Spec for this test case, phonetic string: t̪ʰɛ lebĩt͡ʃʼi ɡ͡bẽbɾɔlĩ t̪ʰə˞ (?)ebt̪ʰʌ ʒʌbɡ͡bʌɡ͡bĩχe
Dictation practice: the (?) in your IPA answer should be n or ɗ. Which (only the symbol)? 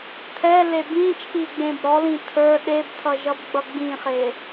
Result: ɗ